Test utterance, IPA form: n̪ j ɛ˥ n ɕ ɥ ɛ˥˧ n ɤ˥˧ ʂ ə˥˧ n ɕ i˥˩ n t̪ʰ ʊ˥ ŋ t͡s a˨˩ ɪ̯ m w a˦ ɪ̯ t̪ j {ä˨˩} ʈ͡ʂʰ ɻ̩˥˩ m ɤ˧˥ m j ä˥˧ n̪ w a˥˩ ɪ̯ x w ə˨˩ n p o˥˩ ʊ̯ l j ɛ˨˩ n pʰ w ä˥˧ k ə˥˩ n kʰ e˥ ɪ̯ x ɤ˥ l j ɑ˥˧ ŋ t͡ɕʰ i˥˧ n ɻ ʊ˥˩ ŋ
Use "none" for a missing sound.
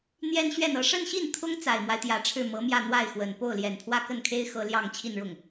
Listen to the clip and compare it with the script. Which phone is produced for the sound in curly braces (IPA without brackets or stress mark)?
ä˨˩